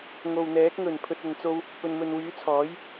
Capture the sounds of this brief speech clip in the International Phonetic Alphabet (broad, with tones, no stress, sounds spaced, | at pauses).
ŋ o˨ w n̪ ɛː˨˥ k̚ ŋ ɵ˨˩ n pʰ ɵ˨ t̚ ɐ˨ n t͡s o˧ w | p ɵ˨ n m ɵ˨ n w yː˨˥ t͡sʰ ɔː˨˥ j